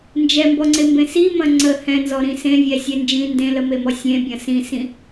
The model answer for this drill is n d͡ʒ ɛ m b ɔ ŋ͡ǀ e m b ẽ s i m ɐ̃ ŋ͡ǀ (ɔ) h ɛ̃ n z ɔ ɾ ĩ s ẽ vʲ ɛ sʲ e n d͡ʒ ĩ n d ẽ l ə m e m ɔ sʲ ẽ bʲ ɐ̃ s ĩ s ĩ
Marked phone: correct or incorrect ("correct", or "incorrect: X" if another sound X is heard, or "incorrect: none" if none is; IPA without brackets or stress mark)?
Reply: incorrect: ə